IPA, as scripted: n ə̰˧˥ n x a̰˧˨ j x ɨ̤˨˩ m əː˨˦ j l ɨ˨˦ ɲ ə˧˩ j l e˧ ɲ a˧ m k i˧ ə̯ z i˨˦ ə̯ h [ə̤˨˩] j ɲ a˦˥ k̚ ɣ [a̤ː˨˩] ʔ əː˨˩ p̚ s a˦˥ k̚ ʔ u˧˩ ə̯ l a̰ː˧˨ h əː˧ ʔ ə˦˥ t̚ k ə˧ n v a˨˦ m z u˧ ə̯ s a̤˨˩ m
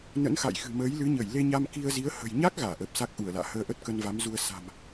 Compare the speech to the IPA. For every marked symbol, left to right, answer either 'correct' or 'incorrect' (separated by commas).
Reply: correct, incorrect